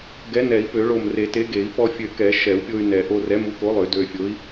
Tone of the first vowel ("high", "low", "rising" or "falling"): rising